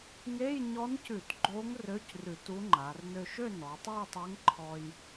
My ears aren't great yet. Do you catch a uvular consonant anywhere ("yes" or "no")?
no